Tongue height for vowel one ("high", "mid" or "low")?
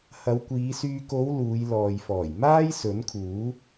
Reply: low